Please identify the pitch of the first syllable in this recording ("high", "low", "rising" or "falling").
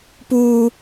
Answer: high